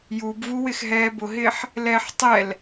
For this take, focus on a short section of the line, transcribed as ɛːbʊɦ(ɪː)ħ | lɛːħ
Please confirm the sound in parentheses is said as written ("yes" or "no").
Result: yes